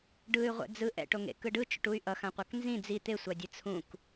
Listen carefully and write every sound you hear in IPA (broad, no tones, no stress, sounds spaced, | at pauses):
ɖ ɯ y̯ ʁʷ ɛ̰ d͡z ɯ ʔ ɛ̰ ʈ o ŋ ḛ k ɯ ɖ ɯ t͡ʃ o̰ ʈ u y̯ ʔ ʌ x ã qʷ a k n z ĩ d͡z i t̪ e sʷ a dʲ ɯ t͡sʰ ũ k